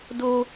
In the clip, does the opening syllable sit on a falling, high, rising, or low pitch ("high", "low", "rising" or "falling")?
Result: high